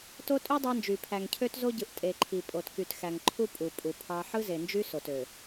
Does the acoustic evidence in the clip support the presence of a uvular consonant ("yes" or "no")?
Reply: no